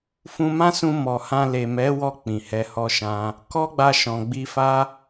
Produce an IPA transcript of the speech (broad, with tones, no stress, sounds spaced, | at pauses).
f ũ˧ m ã˦ s ũ˧ m ɔ˨ h ã˧ l e˨ m ɛ˨˦ w ɔ˧ k͡p ĩ˨ h ɛ˧ h ɔ˦ ʃ ã˦ | k ɔ˦ ɡ͡b a˧ ʃ ɔ̃˨ ɡ͡b i˧ f a˦